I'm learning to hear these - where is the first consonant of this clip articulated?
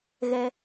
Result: velum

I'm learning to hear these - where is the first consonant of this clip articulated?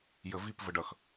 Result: palate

